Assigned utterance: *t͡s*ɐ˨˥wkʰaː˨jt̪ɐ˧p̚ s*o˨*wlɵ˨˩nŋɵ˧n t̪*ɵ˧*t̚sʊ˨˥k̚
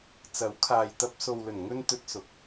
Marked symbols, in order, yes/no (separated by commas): yes, yes, yes